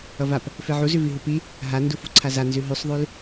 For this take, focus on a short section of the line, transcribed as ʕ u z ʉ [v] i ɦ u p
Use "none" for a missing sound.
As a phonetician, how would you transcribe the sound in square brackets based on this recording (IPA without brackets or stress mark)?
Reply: v